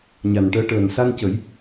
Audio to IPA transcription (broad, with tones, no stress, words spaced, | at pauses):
ɲa˨˩nʈəː˧˥ʈəː˨˩n sa˧ncə˨˩˦j